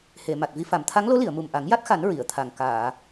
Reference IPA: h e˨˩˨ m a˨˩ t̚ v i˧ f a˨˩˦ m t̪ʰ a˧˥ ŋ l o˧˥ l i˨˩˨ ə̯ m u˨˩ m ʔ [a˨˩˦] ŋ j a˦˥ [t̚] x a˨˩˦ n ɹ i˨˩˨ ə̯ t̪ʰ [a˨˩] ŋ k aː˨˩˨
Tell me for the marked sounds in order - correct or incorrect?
correct, correct, correct

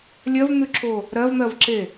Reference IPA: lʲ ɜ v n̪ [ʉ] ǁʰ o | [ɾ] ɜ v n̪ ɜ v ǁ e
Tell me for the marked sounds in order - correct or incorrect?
correct, correct

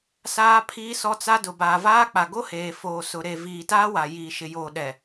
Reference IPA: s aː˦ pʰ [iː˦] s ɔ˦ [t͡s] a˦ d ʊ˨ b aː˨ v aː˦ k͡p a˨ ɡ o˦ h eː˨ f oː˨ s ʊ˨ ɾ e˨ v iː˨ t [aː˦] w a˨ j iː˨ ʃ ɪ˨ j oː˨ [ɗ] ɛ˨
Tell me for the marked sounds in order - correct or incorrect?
correct, correct, correct, correct

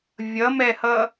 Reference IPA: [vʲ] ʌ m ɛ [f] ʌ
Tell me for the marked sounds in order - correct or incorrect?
correct, incorrect: h

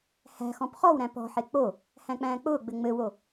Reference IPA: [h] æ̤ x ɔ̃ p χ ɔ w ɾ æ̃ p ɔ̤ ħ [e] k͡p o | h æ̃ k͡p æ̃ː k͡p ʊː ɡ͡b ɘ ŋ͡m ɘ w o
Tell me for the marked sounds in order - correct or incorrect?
correct, correct

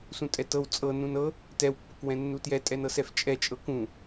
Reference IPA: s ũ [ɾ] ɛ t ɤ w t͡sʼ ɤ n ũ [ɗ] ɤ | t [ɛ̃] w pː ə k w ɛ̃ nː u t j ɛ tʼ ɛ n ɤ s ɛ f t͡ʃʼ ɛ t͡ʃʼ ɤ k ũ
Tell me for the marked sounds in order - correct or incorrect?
incorrect: tʼ, incorrect: n, incorrect: ɛ

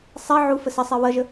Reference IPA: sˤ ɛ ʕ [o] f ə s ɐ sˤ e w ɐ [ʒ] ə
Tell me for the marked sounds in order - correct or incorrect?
incorrect: u, correct

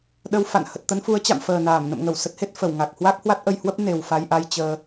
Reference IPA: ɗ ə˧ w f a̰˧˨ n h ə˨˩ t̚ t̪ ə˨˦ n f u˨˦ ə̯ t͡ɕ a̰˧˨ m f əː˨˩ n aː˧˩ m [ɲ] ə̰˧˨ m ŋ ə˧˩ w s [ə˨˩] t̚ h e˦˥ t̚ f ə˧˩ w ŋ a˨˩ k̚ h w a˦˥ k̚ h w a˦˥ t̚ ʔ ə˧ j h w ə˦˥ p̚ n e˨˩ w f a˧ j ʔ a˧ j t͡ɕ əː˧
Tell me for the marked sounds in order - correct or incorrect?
incorrect: n, incorrect: ə˦˥

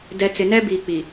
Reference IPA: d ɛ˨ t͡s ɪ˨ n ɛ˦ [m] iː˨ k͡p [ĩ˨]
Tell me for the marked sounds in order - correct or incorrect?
incorrect: b, incorrect: i˨

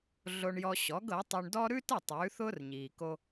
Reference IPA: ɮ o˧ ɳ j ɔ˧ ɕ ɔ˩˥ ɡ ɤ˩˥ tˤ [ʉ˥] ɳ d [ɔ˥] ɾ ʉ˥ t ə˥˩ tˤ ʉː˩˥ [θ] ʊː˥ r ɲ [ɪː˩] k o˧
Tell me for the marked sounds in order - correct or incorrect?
incorrect: ʉ˧, correct, correct, incorrect: iː˩

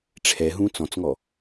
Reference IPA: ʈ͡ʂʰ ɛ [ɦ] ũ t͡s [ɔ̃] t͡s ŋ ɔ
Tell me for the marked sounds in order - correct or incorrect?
correct, correct

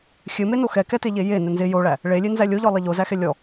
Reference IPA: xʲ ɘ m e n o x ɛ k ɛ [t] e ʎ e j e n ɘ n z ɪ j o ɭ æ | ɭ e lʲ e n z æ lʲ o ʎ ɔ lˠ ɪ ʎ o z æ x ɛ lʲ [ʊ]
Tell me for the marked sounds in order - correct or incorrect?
correct, incorrect: ɔ

